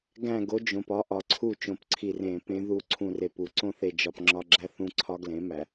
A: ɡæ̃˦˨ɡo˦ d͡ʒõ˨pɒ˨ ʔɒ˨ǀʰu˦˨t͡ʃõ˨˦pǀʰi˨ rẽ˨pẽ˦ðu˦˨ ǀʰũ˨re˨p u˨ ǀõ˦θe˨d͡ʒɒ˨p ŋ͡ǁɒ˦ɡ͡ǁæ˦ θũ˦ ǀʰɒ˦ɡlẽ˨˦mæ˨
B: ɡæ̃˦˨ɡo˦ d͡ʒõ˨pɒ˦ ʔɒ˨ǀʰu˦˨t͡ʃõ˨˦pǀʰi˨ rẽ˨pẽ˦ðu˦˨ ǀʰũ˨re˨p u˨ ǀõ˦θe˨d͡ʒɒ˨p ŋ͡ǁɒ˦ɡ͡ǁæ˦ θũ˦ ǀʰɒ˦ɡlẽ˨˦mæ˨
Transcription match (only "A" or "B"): B